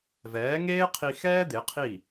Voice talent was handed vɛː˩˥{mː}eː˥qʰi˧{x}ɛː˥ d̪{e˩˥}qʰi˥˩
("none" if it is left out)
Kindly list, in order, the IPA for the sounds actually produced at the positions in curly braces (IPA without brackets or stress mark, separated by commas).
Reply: ŋ, x, e˩˥